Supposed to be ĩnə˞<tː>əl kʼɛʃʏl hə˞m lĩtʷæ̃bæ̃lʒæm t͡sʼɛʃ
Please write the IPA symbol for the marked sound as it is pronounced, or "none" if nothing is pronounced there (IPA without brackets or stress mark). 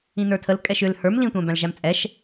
tʰ